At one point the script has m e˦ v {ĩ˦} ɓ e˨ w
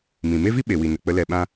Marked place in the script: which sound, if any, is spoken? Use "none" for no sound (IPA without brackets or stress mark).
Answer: i˦